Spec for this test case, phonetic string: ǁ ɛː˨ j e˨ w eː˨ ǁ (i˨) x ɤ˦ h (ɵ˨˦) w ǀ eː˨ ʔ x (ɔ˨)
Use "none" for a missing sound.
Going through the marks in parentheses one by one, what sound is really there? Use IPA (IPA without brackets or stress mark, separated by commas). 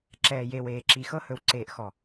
i˨, ɵ˨˦, ɔ˨